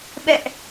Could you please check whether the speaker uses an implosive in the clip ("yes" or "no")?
yes